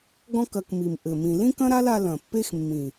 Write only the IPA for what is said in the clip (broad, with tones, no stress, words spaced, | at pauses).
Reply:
ɡɔ̃˦k ɐ˧kmi˨m ʔɘ˨mĩ˨ lĩ˦kɐ̃˦ ɾa˦la˧ lɐ̃˨pːe˦x mːĩ˨